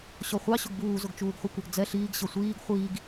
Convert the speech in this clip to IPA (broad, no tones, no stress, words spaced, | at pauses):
ɕɔχʷɑ ɕʊɡbuː zʊɡt͡ʃuːɡχʷikʷʌɡ d͡zɛ ɬiːɡ ɕʌsʷiːɡ χʷiːɡ